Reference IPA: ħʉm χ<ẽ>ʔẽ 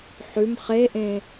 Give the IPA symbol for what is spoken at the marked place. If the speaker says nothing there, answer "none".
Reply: e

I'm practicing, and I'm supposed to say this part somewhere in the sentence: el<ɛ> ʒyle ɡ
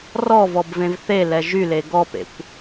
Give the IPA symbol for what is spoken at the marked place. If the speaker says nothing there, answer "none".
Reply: ɛ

